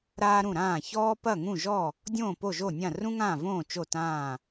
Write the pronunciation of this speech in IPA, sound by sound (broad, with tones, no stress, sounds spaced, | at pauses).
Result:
ɾ aː˥ ɾ ũ˥˩ ɾ ãː˥˩ ç ɔː˥ p ɐ˥˩ ŋ ũ˥˩ ʒ ɔ˥˩ | dʲ õː˥˩ p o˥˩ ʒ o˥˩ nʲ ã˥˩ r ũ˥ ŋ ãː˥˩ v õː˥˩ t͡ʃ o˥˩ t ãː˥˩